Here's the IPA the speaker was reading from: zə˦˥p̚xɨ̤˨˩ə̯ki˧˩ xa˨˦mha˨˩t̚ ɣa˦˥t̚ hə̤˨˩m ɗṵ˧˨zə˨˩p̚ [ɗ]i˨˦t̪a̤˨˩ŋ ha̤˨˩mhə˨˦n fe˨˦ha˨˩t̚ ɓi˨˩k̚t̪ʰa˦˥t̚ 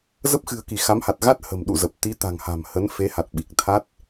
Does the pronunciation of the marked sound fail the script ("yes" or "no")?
yes